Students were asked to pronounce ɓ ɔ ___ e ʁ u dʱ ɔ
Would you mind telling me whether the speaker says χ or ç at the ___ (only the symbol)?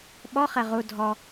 χ